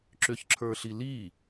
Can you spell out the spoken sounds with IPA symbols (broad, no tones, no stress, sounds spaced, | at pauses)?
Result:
ǁ ʏ ç ǁʰ ə˞ ɬ i l i